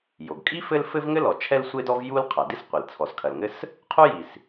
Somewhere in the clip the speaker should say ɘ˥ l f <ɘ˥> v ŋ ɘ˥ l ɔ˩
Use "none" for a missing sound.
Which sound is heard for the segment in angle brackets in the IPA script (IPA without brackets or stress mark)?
ɘ˥